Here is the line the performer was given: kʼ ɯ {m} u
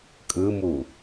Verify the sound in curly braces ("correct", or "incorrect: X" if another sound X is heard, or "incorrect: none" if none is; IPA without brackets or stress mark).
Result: correct